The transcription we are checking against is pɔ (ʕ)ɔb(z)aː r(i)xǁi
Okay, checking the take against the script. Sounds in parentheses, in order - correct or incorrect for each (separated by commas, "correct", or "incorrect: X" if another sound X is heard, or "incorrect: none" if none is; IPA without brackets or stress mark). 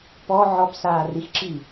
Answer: correct, incorrect: s, correct